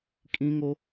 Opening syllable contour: high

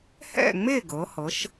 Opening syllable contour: falling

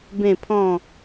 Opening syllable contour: falling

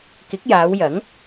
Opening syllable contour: rising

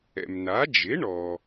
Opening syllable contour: low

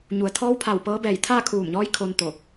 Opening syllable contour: low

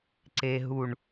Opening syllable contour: low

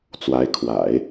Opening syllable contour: rising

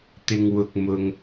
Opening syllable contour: low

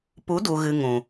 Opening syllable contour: rising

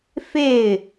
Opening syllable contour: falling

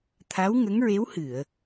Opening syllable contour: rising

